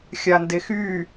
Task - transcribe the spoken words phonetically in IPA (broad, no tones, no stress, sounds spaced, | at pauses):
xʲ a n d e x y